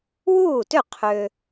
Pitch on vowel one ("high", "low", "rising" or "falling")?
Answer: falling